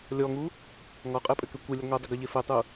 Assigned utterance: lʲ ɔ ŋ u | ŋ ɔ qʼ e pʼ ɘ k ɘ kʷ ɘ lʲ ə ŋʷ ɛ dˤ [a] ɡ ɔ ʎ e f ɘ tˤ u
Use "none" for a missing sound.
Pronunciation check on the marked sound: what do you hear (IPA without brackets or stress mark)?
ə